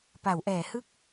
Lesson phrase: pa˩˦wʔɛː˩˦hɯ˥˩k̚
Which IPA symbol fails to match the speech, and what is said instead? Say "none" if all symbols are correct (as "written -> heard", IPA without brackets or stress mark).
none